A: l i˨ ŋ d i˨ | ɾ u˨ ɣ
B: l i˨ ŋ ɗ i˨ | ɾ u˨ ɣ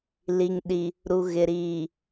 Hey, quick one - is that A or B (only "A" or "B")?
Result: B